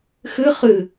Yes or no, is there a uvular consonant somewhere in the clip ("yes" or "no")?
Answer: yes